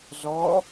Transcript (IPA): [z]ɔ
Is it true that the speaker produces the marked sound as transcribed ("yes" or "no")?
yes